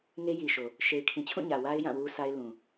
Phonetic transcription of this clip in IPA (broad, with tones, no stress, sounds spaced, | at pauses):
ŋ e˦ j i˨ ʃ o˨ | ʃ e˨ ɪ̯ kʰ ĩ˨ t͡ɕʰ ũ˦˨ ɲ ä˨ w a˦ ɪ̯ j ã˦˨ w u˦ s a˦ ɪ̯ l ũ˨